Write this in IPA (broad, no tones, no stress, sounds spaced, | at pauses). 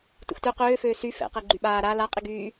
t ṵ x t ø q øː f øː s y f ɛ̰ q ɛ ɡ͡ǃ y ɓ aː ɾ a l a qʼ i ɡ yː